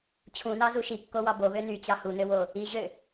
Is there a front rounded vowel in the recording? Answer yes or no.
yes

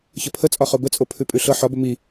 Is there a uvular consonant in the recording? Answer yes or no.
yes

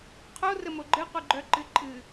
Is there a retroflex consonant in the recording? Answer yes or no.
no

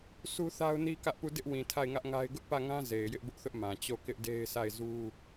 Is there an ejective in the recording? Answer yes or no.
no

